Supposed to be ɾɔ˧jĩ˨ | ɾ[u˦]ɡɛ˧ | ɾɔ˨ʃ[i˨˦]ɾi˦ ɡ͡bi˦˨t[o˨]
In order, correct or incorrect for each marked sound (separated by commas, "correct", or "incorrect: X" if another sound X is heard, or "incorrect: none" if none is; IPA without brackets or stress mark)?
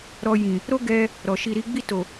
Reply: incorrect: o˦, incorrect: i˧, correct